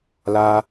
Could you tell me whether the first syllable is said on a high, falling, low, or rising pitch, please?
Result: high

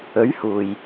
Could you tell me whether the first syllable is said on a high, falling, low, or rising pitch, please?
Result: rising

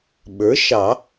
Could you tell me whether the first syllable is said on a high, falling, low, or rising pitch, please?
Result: rising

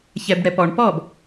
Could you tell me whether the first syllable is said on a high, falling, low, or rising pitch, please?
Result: low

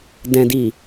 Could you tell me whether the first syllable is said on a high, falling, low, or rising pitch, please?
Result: low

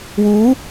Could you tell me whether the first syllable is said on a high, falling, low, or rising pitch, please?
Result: rising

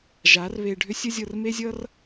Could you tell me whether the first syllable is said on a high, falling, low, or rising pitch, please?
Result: rising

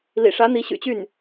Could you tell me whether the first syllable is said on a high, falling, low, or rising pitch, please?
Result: low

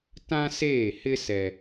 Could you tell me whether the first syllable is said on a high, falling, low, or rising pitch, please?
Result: high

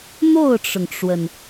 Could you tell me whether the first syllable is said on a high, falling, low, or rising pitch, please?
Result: falling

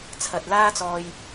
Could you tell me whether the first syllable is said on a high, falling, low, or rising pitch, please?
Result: low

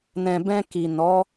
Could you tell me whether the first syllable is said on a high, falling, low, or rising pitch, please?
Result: low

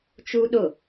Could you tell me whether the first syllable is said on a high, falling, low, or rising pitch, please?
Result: high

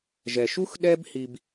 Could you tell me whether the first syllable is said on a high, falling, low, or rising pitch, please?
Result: low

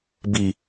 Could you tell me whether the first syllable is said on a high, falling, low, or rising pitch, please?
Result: low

